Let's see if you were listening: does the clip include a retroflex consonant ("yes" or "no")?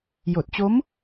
no